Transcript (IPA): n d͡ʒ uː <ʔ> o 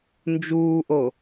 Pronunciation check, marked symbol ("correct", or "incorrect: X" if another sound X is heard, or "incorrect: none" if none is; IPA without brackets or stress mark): correct